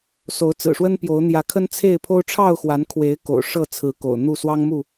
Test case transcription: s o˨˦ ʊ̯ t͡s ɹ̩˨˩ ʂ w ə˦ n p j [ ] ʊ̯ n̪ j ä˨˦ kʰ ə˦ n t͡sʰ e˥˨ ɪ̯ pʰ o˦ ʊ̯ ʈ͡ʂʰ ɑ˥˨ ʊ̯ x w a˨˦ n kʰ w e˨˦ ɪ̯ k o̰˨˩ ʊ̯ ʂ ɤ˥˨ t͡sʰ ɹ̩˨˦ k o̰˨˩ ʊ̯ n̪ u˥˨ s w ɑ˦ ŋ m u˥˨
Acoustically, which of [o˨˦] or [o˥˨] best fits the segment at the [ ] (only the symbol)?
o˨˦